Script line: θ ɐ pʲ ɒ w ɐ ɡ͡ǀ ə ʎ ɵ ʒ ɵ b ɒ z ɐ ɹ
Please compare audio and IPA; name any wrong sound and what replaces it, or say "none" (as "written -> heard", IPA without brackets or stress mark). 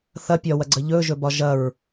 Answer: z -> ʒ